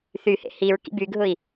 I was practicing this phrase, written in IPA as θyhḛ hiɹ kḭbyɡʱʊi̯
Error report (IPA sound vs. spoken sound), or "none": none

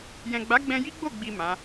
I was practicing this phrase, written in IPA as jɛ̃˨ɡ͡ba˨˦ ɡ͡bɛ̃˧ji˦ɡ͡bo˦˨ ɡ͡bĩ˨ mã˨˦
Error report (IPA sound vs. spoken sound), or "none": ĩ˨ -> i˨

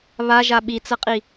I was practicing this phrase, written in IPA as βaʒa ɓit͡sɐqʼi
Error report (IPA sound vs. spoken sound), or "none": none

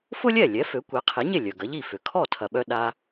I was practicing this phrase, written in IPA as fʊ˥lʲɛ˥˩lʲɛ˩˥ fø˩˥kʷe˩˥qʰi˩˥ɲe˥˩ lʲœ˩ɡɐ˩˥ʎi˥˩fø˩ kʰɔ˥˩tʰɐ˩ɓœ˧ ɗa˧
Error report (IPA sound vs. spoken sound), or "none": none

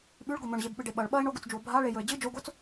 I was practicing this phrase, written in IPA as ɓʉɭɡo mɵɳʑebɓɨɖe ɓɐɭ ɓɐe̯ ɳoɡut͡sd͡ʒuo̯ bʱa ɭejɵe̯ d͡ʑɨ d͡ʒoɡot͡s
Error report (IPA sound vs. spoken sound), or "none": none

